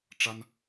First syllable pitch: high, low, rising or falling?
high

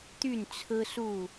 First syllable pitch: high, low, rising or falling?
falling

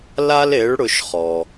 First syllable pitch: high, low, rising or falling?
high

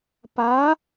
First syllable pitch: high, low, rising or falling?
rising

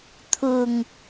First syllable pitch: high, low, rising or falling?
low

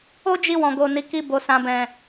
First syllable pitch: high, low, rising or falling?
high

